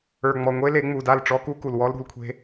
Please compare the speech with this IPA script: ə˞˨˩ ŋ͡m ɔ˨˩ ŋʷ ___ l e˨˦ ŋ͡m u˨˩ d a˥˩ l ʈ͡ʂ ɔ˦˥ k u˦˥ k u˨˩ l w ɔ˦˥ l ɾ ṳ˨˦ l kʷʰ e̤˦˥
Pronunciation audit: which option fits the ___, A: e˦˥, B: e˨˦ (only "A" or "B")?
A